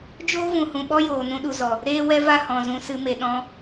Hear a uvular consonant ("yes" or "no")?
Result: no